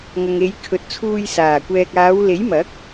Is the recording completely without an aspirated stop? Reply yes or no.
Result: no